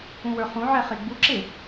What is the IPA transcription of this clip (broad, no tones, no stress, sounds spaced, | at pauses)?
ũ w ə˞ χ ũ ʕ ɛ χ e ɡ͡b u ǁ e